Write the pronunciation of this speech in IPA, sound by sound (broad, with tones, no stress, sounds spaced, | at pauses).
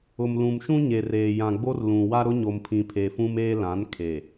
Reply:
ʊ˨ m l ũ˨ m ʃ ũ˦ ɲ e˨ r eː˨ j ã˨ ɡ͡b o˦ r l ũ˨ w a˦ ɾ ʊ˦ ɲ o˨ m pʰ ĩ˨ pʰ e˨ f ũ˦ m eː˦ l ã˨˦ n kʰ e˨